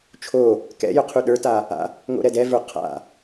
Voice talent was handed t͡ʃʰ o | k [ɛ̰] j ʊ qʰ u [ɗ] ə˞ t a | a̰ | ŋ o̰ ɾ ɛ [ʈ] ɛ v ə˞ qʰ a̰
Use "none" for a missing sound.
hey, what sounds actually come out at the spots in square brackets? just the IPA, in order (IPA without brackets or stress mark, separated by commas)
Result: ɛ̰, ɗ, d